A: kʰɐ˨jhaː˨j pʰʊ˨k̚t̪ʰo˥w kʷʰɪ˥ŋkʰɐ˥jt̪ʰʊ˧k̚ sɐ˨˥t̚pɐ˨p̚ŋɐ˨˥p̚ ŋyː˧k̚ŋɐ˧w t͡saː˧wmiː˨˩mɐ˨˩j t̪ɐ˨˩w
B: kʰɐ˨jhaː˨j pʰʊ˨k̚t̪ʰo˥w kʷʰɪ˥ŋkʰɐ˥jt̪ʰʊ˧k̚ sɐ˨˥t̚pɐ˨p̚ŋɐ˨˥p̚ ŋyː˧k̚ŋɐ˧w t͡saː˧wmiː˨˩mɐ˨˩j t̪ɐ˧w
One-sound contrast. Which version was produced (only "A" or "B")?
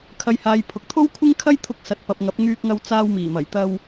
B